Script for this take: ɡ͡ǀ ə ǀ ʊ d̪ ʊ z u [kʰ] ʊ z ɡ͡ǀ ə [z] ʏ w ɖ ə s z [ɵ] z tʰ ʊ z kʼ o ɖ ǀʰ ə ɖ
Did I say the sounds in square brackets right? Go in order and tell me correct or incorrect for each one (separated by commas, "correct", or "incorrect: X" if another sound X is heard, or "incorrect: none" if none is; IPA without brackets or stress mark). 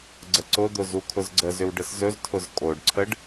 correct, correct, correct